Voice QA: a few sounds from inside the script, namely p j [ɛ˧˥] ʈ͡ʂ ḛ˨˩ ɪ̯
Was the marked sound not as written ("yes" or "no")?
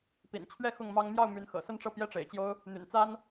yes